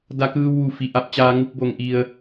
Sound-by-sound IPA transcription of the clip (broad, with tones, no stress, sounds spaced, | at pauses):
d a˧ k ɯː˧ w ʋ u˩ f i˩ ʔ a˧ p̚ t͡ɕ aː˧ ŋ u˧ k̚ b o˩ ŋ ʔ i˩ ə̯